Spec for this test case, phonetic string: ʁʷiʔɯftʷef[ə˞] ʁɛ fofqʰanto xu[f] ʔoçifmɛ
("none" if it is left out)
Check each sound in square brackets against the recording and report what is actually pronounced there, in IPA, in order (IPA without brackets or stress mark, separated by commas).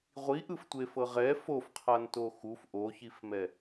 ɤ, f